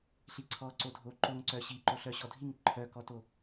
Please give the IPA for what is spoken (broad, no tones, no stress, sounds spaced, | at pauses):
ɬ i ǀʰ ɔ ǀ o dʱ o ǃ o ŋ ǀ œ ɕ i ǃ o ɬ œ ɕ ɔ dʱ i ŋ ǃʰ œ k ɔ t o